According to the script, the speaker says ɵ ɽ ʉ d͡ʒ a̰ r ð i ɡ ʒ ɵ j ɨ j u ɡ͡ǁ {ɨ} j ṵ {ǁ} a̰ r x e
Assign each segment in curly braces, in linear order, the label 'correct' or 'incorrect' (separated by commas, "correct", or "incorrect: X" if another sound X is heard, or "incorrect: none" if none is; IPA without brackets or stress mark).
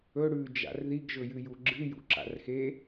correct, correct